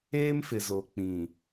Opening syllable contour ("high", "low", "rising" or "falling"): high